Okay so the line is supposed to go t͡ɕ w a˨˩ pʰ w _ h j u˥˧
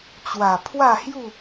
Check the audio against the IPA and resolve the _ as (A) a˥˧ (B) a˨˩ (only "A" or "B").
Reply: A